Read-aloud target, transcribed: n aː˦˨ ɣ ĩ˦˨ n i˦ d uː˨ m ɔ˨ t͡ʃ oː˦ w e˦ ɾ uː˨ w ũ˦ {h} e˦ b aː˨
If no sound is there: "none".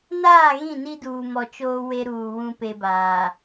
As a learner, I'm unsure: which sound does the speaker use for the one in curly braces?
p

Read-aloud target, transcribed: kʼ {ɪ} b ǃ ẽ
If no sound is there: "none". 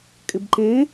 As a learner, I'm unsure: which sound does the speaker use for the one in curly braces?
ɪ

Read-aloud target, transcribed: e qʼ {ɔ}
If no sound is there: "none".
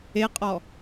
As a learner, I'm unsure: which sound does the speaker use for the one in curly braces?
ɔ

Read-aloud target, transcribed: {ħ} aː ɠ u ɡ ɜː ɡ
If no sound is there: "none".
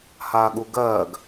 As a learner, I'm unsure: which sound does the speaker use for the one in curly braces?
h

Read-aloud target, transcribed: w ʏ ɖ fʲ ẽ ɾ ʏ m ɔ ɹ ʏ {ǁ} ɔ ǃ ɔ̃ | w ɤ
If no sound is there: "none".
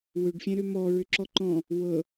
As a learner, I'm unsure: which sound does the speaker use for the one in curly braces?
ǁ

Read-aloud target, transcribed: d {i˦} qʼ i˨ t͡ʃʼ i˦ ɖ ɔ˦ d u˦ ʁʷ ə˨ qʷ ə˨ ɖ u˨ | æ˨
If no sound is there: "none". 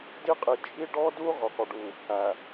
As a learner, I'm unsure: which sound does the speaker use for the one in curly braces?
i˦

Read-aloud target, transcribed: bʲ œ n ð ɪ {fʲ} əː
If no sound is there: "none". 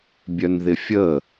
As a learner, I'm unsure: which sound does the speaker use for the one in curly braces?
fʲ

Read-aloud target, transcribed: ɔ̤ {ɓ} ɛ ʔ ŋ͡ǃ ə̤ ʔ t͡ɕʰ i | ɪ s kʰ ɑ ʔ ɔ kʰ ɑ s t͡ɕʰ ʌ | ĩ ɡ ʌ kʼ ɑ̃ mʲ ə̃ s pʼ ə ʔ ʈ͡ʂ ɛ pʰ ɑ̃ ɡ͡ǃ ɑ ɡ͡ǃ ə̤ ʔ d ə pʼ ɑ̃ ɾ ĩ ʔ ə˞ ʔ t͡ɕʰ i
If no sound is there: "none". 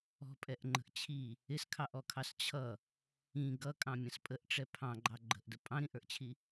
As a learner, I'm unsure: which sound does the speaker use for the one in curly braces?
pʼ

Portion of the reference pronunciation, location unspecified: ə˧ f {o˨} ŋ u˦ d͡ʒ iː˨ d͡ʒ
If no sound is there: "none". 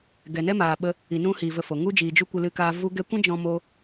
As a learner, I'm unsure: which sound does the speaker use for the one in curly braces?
o˨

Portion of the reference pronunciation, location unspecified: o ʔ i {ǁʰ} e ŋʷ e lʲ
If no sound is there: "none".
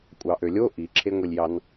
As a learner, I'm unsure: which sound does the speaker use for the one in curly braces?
ǁʰ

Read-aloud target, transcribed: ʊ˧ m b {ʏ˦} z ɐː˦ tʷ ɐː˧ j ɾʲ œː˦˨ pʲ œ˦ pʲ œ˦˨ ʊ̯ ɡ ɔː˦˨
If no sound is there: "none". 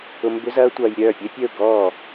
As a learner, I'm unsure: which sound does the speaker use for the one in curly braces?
ʏ˦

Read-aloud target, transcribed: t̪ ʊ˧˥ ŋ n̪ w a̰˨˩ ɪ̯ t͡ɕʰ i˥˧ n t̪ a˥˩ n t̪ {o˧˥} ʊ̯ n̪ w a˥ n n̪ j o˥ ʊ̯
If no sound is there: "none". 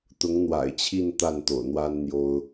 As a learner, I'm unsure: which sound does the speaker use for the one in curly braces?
o̰˨˩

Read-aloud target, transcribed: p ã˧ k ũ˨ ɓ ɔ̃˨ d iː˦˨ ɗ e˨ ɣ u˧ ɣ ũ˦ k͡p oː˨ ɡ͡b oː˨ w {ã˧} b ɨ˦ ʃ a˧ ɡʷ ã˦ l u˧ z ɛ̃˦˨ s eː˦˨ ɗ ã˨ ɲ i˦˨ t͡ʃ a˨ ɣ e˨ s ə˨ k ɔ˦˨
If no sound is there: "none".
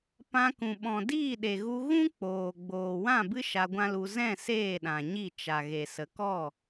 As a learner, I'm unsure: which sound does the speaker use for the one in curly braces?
ã˦˨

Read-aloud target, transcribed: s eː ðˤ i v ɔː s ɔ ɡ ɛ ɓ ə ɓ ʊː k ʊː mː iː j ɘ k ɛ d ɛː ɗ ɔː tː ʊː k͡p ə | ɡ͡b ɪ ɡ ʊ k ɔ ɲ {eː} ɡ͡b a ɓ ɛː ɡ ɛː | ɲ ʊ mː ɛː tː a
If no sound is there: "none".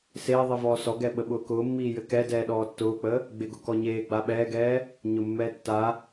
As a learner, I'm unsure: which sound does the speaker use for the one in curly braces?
eː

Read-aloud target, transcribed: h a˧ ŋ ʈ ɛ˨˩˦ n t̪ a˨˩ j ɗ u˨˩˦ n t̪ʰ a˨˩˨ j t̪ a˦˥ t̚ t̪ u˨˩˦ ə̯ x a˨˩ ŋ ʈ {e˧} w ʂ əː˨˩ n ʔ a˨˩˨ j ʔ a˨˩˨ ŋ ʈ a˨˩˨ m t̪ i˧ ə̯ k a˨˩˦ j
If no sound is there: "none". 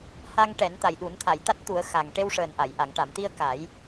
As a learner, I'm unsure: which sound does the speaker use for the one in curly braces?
e˧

